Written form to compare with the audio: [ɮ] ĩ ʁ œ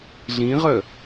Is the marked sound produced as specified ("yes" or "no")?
yes